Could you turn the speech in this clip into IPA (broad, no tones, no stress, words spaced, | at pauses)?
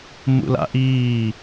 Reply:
mṵla̰ʔiː